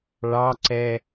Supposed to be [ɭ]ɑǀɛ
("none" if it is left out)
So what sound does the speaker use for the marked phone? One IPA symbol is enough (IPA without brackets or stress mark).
ɭ